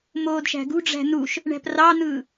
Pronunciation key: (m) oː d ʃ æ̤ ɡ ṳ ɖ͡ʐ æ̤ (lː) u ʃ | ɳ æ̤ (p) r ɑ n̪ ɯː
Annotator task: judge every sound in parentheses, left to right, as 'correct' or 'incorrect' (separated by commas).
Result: correct, incorrect, correct